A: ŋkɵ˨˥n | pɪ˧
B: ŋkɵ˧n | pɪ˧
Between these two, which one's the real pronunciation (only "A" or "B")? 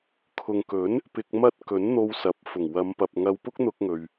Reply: A